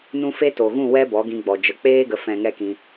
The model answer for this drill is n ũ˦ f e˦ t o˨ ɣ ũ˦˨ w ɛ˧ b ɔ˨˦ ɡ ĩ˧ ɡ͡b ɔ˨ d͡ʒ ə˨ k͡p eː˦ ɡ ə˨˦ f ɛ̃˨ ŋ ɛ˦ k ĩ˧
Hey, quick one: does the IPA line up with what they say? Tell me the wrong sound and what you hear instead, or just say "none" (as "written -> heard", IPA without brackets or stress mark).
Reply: none